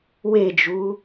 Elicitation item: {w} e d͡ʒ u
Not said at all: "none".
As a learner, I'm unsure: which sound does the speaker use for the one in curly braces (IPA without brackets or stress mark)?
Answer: w